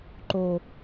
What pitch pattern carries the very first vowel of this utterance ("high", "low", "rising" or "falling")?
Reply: low